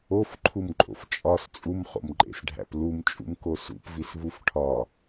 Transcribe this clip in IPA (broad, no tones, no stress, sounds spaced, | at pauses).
o f ǃʰ u m ǃʼ o̰ f t͡ʃʼ ɒ s t͡sʼ u m χ o̰ m ǃʼ ḛ s ɖʱ æ̰ p l u m t͡ʃʼ ṵ m k o s ṵ p v i s v u f ʈʰ ɒ